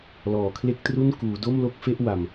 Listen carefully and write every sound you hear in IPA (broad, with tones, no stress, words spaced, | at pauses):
lɔː˨˩kʰle˥˩k̚tru˥˩n kuː˩˦do˥˩mlo˥˩k̚fe˥˩ʔ wa˧m